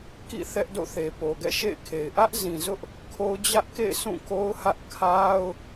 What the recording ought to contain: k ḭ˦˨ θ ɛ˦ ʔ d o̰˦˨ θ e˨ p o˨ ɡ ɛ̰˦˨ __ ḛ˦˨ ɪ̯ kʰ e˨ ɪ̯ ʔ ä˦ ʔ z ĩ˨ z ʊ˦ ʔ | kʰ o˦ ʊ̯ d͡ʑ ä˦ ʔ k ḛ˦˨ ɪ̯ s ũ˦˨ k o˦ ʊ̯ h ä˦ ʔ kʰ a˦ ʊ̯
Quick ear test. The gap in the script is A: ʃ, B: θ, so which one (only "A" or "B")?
A